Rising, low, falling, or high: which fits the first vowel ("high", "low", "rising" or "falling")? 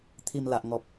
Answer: low